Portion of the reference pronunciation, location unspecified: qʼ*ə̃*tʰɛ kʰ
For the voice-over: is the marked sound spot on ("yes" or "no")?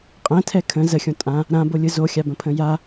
no